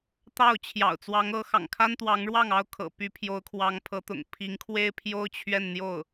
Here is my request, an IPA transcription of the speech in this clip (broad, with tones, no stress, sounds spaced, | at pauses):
t̪ ɑ˥˩ ʊ̯ t͡ɕʰ j ɑ̰˨˩ ʊ̯ t͡s w ɑ˧˥ ŋ ɤ˧˥ x ɑ̰˨˩ ŋ kʰ a˥ n t̪ w ɑ˧˥ ŋ ɻ w ɑ˥˩ ŋ ɑ˥ ʊ̯ kʰ ɤ̰˨˩ p y˧˥ pʰ j o˧˥ ʊ̯ kʰ w ɑ˧˥ ŋ pʰ ɤ˧˥ t̪ ʊ̰˨˩ ŋ pʰ i˧˥ ŋ kʰ w e˥ ɪ̯ pʰ j o˥ ʊ̯ t͡ɕʰ ɥ ɛ˥˧ n n̪ j o˥˩ ʊ̯